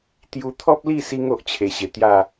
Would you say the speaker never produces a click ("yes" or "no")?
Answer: yes